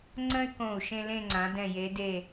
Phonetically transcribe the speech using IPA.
ŋ͡ǀə̃˥y̯kõ˧˩u̯ʃẽ˧ lẽ˥˧ŋ͡ǀã˩˧dɛ̃˧˩ je˩˧ de˧˩

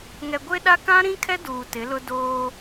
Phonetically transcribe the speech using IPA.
ŋɛ˨ɡʷe˦ɗa˦ kã˦ɾĩ˦kʰɛ˦ duː˨tɪ˨˦lʊ˦ doː˦

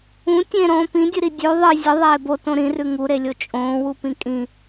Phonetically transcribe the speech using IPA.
ũ tʲẽɾõː pĩdʲɨɾi dʲʉ ðˤɨ zʲɨðˤeː botõ ɾĩrʉ ŋuɾelʲo t͡ʃʼõːwupĩ kʼĩ

